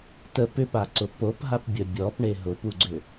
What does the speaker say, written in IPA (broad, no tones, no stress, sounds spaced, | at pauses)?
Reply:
t ə p ʏ p a ǀ ʊ p o p ɦ a p bʲ ə bʲ ɔ p ɳ e ɦ ʊ p u ɡ͡ǀ ʏ